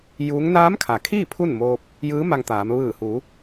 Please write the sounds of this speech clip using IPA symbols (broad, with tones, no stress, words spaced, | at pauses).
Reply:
juː˧˥ŋ naː˧˥m kʰa˩kʰiː˥˨ pʰu˥˨nmoː˧p̚ | jɯː˧˥ ma˧ŋt̪aː˩˧m ʋɯː˧˩hu˩˧